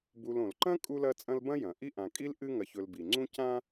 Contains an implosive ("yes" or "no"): no